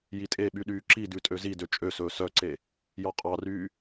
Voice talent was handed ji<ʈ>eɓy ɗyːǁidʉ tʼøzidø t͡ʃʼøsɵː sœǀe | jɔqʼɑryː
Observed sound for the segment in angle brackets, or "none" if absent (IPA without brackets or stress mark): tʼ